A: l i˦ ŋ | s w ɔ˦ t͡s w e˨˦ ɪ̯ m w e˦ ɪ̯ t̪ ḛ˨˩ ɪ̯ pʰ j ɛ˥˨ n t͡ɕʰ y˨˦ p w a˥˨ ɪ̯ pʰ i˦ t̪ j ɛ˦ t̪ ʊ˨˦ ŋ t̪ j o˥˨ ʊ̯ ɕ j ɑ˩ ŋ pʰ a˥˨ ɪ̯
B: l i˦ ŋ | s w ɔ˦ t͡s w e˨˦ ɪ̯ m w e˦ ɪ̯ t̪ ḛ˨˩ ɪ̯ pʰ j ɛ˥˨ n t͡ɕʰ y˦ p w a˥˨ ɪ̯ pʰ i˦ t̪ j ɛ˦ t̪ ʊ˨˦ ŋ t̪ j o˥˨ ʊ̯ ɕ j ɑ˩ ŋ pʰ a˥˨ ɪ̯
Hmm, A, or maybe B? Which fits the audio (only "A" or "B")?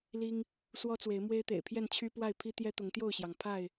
B